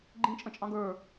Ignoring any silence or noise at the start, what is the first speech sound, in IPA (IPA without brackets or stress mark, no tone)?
ɡ͡ǃ